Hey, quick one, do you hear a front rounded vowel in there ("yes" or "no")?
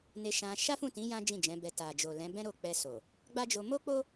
no